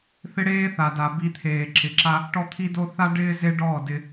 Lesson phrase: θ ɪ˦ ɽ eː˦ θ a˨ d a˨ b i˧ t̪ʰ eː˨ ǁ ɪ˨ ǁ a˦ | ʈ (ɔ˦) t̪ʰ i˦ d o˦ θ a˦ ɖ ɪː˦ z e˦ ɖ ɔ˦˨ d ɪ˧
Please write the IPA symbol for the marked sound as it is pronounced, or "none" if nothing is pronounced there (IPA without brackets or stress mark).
ɔ˦